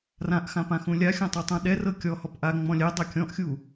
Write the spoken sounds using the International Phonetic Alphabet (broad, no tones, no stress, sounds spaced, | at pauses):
r ã ʔ x ã p ã x ũ lʲ a xʲ ɔ̃ tˤ u tˤ ũ ɗ ɛ r ɤ kʲ ɔ h ɔ p ʔ a ŋ͡m ɔ̃ lʲ ɛ dˤ a kʲ ɔ̃ ʔ xʲ u